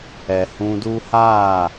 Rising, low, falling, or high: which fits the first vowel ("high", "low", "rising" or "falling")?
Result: low